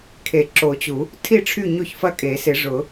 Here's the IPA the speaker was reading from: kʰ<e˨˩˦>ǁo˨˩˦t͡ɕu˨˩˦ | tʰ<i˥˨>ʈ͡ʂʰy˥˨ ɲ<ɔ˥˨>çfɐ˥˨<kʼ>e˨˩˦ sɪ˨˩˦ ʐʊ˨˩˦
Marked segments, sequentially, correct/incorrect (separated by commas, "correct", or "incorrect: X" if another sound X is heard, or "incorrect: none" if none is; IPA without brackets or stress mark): correct, correct, incorrect: o˥˨, correct